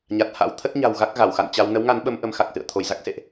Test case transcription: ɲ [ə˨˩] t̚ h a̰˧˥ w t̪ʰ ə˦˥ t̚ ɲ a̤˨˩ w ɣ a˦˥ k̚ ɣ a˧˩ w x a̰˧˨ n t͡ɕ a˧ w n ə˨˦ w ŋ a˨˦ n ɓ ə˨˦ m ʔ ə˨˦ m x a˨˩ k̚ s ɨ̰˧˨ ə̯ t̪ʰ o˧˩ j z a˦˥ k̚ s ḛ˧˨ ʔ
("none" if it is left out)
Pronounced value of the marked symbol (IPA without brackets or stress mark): a˨˩